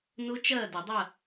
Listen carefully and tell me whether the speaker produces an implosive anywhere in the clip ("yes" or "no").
no